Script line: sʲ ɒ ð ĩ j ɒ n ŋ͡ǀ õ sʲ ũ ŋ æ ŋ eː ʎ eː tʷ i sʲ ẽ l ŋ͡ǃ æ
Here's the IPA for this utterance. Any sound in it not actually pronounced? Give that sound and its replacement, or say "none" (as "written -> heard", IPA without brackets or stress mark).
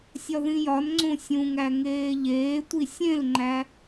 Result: none